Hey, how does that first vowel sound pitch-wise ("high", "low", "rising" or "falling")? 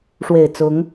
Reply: low